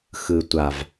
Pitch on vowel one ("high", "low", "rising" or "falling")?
low